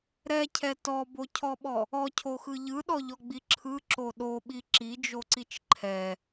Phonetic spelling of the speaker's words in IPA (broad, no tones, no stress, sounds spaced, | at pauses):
ɾ ɛ cʰ ɛ t ɔ b o cʰ ɔ ɓ ɔ | ɔ cʰ o x ɯ ʎ ɯ ɗ ɔ ʎ ɔ ɡ͡b i ǁʰ ɯ ǁ o ɗ o ɓ i ǁ i d͡ʒ o ǀ i t͡ʃ ǃʰ ɛ